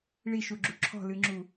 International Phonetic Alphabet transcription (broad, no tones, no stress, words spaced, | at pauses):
ɭiʃuɡ͡ǁu ǁʰɔ̤lɨŋ͡ǁu